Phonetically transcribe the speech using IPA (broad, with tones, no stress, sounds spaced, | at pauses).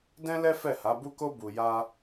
d ɛ̃˦ l ɛ˦ f ɛ˦˨ h a˨˦ b u˦ k o˦ b u˧ j a˦